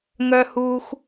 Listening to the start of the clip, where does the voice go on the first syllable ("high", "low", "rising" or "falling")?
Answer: low